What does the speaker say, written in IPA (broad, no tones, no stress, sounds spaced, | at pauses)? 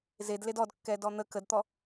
z e d l e d ɔ d kː ɛ d ɔ n̪ ə k ə d t̪ ɔ